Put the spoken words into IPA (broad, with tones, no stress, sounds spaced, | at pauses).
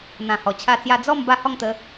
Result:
n̪ ã˨˩ h ɔ˨˩ t͡ɕʰ a˥˧ t͡s j a˥˧ d͡z ɔ˥˧ m b a˥˧ h ɔ˥˧ ŋ t̪ ə˨˦